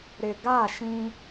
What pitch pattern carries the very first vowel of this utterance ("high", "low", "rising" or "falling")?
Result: low